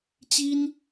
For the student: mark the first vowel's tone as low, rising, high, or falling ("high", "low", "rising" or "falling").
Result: high